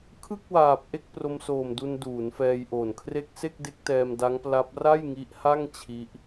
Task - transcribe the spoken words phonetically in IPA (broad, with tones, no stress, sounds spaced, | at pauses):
kʰ ɯ˥˩ k̚ w aː˨˩ p̚ ʔ e˥˩ k̚ p r o˧ m s oː˨˩ m d u˧ n d uː˩˦ n f ɛː˧ j ʔ oː˨˩ n kʰ r e˥˩ k̚ s e˥˩ k̚ d e˦˥ k̚ t ɛː˧ m d a˦˥ ŋ p l a˦˥ p̚ r a˥˩ j ŋ i˦˥ ʔ h a˥˩ ŋ t͡ɕʰ i˦˥ ʔ